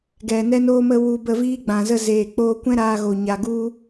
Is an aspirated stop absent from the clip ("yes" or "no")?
yes